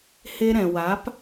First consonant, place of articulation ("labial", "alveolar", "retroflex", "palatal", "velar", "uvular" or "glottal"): glottal